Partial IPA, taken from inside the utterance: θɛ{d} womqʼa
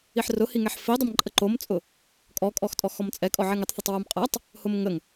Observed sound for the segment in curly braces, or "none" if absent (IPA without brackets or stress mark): tˤ